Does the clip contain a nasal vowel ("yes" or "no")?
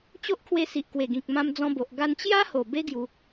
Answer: yes